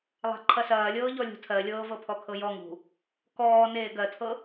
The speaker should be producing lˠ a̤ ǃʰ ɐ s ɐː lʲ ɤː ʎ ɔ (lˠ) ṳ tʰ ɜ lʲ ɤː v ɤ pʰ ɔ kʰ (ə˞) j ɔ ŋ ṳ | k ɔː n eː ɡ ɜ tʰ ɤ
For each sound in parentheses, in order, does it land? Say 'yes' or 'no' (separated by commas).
no, no